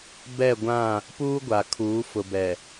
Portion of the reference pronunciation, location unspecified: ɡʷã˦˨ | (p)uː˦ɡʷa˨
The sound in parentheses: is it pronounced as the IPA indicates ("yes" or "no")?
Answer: yes